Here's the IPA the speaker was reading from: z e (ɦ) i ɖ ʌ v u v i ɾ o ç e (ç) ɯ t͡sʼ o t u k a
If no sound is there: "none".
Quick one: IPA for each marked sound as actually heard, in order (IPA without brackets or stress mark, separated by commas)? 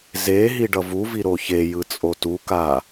ɦ, j